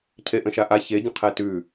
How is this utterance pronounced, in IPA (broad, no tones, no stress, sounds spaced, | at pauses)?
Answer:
cʰ e ʔ ə̃ ʃ a ʔ a ç e ɟ ə̃ qʰ ɛ t ʉ